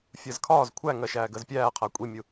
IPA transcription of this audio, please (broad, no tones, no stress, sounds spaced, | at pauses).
fʲ ɜ z kʰ ɒː z kʷʰ æ ŋ ɜ ʃ æː ɡ ɜ z pʲ æː qʰ æ kʷʼ i mʲ u